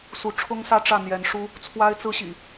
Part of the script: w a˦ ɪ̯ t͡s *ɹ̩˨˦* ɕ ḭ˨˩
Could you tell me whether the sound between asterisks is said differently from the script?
yes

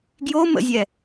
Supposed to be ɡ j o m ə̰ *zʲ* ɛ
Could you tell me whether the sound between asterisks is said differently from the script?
no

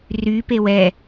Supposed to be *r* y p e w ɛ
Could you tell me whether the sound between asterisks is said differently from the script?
no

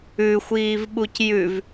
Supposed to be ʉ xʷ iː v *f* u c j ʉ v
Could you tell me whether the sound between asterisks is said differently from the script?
yes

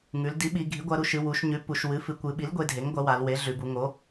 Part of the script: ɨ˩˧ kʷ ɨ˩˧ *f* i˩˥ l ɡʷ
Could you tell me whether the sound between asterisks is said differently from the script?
yes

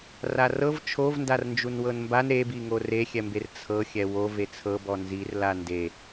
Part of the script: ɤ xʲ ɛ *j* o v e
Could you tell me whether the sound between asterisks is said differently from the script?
yes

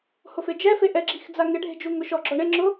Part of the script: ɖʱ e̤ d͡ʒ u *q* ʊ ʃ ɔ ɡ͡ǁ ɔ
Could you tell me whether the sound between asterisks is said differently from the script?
yes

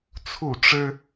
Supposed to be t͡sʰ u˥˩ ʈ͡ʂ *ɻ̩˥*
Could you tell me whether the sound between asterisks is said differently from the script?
no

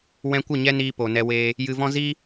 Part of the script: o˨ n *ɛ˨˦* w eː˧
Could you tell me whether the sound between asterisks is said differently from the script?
yes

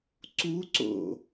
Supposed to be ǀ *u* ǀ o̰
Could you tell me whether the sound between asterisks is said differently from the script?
no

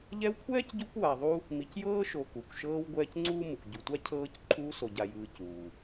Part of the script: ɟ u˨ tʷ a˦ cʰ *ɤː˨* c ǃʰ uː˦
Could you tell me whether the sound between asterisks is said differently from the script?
yes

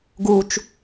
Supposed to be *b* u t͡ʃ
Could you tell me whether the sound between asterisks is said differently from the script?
yes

